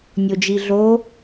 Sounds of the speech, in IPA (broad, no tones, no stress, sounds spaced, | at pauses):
nʲ o d͡ʒ i ɮ o